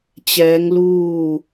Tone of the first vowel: rising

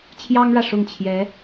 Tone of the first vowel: high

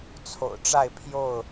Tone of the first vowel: low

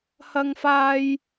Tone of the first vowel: high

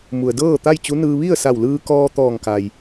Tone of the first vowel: low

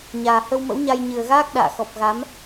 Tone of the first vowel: low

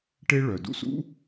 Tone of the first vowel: high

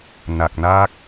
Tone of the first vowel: low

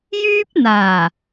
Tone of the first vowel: high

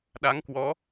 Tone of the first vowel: rising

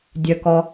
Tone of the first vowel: low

